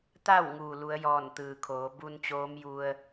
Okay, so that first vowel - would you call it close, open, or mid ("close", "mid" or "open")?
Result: open